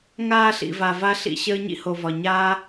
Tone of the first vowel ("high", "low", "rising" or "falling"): falling